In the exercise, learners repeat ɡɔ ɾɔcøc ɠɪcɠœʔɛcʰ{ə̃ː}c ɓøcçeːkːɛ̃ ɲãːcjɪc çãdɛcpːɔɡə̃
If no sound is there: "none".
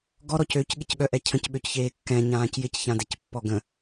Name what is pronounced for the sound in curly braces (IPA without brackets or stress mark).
ə̃